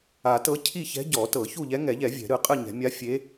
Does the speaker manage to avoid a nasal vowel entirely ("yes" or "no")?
yes